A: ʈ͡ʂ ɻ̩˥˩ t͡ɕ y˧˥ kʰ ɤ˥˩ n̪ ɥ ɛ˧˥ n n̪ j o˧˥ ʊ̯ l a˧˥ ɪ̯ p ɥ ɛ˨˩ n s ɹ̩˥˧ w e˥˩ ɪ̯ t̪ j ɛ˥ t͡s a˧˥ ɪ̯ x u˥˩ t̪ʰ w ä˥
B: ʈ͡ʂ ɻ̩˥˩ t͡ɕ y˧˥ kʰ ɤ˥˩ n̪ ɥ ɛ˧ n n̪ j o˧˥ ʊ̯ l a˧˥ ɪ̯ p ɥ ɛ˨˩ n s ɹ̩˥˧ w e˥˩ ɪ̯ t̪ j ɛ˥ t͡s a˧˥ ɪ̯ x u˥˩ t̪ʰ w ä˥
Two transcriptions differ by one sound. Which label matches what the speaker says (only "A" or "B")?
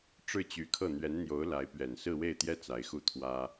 A